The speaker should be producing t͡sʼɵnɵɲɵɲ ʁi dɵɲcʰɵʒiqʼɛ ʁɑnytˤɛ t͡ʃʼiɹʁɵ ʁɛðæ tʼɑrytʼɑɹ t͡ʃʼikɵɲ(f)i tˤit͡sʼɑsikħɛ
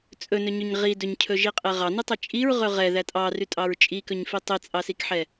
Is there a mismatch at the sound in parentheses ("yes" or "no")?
no